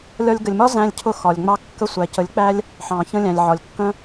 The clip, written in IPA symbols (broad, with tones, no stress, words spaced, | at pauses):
lʲɒ˧lʲɡə˨lʲmɒ˦ zæ̃˧lʲcʰʊ˧xɒ˨lʲŋ͡mɑ˧ kːə˧sʷæ˨cə˨˦lʲk͡pæ˦lʲ | ħɑ̃˨ çə̃˧lʲæ̃˨lʲʕɒ˨lʲ kːə̃˦